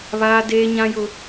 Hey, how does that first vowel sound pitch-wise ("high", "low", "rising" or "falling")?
high